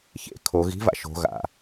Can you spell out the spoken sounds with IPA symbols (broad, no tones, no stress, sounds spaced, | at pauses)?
ç ḛ kʰ o ɣ i̤ v a̰ ʃ o̤ ɣ a̰